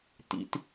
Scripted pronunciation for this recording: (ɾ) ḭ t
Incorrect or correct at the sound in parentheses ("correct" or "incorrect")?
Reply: incorrect